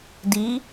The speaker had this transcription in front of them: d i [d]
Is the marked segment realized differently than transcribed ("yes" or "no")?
yes